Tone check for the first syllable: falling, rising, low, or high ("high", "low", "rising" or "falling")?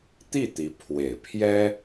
falling